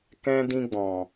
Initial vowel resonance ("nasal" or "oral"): nasal